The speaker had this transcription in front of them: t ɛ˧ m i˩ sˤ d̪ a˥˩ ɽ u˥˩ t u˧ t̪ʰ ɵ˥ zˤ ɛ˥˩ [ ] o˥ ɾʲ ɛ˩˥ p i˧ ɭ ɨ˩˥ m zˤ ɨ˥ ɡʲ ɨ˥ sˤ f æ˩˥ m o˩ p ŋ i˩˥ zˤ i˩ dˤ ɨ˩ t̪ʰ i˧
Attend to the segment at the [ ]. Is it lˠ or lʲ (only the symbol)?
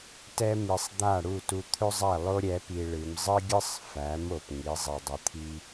lˠ